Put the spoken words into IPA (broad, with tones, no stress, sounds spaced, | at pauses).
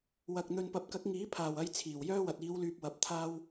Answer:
w ɐ˨ k̚ n̪ ɵ˨ n p ɐ˨ p̚ k ɐ˨˥ k̚ ŋ iː˨˥ pʰ aː˨˩ w ɐ˧ j t͡sʰ iː˨˩ w j œː˥ w ɐ˨ t̚ iː˨˧ w l yː˨ p̚ w ɐ˨ p̚ t̪ʰ aː˥ w